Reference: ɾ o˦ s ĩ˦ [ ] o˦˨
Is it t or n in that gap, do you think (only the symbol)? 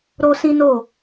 n